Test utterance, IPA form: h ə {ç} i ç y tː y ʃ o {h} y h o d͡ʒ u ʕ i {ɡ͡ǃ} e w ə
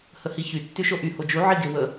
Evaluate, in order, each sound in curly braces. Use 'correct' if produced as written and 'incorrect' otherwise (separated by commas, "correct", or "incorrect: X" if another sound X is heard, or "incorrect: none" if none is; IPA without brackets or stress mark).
incorrect: h, incorrect: ʔ, incorrect: ɡ